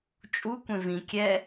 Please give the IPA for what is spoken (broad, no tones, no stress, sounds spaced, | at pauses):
t͡ʃʼ u kʷ ẽ v ĩ kʲ ɛ